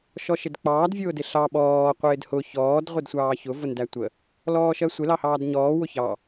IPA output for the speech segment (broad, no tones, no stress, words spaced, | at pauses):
ʃɔʃɪdk͡pɑːd vʲʊːdɪɬɑ ɓɔː qʷɪːdhʊ çɔːd ʁʷɪdsʷɑːçʊ vʊndætʷə | lɔːʃɜsʷɪ lɑhɑːdɲɔː wʊçɑ